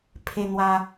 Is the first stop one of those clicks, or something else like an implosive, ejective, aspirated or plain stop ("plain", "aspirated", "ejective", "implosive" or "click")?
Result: aspirated